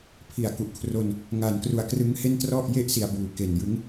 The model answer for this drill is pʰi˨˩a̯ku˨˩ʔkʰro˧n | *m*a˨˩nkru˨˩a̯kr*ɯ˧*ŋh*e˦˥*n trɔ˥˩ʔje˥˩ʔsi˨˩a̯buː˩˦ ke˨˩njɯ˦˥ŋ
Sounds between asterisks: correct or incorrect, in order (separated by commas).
incorrect, incorrect, incorrect